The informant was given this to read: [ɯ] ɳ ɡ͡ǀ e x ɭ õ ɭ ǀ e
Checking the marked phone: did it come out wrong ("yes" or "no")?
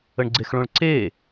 yes